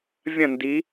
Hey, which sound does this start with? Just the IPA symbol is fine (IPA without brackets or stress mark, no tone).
vʲ